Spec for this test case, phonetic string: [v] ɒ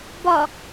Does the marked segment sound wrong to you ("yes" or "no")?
yes